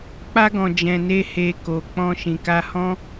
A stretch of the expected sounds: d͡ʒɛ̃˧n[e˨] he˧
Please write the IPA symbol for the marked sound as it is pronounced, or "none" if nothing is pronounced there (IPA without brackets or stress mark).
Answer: e˦